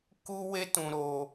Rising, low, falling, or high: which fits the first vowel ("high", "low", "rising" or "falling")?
high